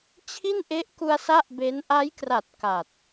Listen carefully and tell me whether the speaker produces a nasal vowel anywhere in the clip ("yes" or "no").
no